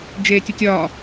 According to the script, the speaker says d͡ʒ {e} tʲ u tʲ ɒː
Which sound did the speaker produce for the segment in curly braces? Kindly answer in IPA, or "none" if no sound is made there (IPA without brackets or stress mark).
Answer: eː